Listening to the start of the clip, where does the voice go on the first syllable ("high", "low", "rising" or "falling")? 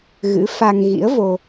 rising